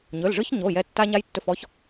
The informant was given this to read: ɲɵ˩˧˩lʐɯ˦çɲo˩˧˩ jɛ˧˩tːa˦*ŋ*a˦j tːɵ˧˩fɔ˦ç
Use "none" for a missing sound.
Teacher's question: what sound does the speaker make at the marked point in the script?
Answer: ɲ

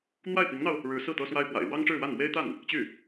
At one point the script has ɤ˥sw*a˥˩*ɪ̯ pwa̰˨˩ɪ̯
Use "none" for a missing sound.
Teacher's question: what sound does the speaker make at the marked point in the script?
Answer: a˥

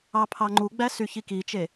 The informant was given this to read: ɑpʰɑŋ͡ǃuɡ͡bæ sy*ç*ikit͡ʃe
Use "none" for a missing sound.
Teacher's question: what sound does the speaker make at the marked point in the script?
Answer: ç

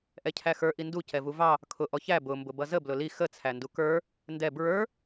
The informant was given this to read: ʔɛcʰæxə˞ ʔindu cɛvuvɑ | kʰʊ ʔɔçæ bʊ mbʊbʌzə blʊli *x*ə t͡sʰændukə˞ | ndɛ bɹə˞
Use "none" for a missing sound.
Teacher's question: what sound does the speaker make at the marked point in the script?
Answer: x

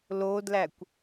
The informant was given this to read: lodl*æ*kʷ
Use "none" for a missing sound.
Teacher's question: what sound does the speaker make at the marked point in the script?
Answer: æ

